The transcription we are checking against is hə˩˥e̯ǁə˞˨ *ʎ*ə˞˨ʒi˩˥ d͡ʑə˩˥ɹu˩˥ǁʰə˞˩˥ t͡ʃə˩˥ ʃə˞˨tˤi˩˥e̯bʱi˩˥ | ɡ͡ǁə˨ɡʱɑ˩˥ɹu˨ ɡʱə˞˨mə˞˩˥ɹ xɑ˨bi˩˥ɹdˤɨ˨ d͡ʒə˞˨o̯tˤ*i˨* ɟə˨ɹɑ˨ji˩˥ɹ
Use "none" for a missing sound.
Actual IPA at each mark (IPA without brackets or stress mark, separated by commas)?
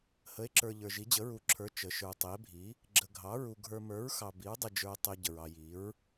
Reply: ʎ, i˨